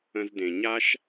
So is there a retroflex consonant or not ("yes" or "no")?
no